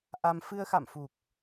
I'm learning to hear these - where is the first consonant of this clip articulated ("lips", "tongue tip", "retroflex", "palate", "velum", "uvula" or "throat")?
throat